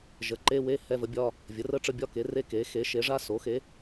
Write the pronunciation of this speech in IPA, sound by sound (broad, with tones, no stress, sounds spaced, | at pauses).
ʒ ə˩˥ ǃ e˧˥˧ w e˧˥˧ h ɛ˧˥˧ v ə˩˥ bʲ ɒ˧˥˧ | vʲ ə˩˥ r ə˧˥˧ ʈ͡ʂ ə˧˥˧ bʲ ɒ˧˥˧ k e˩˥ r e˧˥˧ k e˩˥ x e˩˥ ʃ e˩˥ ʐ a˧˥˧ s o˩˥ x e˩˥